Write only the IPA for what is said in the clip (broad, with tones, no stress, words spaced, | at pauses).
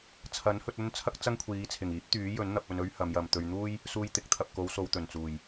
t͡sʰɐ˨˥nhɵ˧t̚ɵ˥n t͡sʰɐ˥k̚t͡sɐ˥ŋkʷʰiː˨˧t͡sʰɪ˨˩ŋ iː˨˥p̚t̪yː˨˥jɵ˨˥n n̪ɐ˧p̚ɵ˧nɵ˥ɥ hɐ˨˧mjɐ˨mt̪ɵ˧ɥ n̪uː˥j | suː˧jt̪ɪ˨˥k̚t̪ʰɐ˨p̚ ko˨˧wso˨w t̪ɵ˨˩nt͡suː˨˩j